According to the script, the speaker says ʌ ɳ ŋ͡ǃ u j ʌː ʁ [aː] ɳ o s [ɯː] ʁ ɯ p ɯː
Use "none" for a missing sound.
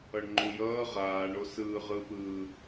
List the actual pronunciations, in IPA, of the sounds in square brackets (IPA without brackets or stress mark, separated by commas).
aː, ɯː